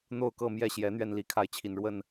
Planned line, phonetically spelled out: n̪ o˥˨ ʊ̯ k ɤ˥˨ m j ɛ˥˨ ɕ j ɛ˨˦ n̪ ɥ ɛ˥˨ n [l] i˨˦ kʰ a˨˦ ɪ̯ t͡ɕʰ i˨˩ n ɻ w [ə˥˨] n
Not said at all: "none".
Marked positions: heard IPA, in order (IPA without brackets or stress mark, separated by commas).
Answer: l, ə˥˨